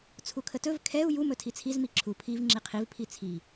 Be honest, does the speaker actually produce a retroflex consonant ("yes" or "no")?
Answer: no